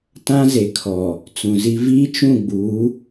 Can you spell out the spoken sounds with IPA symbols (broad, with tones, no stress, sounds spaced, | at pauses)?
t ã˦ z e˨ kʰ ɔ˨ | t͡s ũ˨ z i˦ v iː˦ t͡ʃ ũ˦˨ ɡ͡b uː˨˦